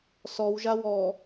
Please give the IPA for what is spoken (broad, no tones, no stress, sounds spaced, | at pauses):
s ɔ w ʒ a w ɔ